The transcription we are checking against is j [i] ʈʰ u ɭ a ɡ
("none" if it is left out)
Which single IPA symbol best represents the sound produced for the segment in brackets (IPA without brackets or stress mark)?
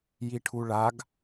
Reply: i